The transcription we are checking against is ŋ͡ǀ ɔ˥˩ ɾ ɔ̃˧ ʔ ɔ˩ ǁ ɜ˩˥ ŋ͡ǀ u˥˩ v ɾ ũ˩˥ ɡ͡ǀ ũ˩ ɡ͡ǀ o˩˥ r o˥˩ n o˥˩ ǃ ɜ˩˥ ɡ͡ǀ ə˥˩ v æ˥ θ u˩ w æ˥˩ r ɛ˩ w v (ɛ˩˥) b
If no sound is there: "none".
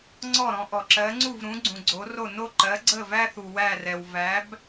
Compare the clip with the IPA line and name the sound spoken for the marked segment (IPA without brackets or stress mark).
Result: æ˩˥